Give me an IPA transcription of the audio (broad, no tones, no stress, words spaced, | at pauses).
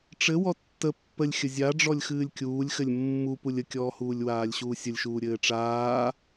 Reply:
ʈ͡ʂɘ wɔtːə pːəlʲ xʲəzʲaɖ͡ʐɔlʲ xɨːlʲkʲuːlʲxɘlʲ mːu pulʲəkʲɔːhuːlʲ waːlʲɕuːsʲəlʲʃuː ɾʲɘːʈ͡ʂaː